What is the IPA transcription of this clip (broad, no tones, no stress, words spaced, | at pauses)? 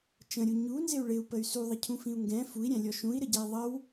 t͡ʃə̃ɾʲu ɲunzɪu̯ ɭɪu̯pəy̯ suðˤəcʰũfĩu̯ ŋɡɛ̃ fui̯ɾʲæ̃lʲɔ ʃũi̯ɾəɟɛi̯ ðˤəw